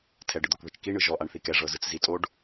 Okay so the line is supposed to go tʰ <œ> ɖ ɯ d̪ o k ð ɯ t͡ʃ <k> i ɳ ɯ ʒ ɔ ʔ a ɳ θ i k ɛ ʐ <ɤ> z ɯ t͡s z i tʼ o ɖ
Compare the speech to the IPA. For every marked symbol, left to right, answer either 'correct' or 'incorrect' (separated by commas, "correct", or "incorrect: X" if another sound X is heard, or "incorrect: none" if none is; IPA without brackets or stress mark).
incorrect: ɛ, correct, correct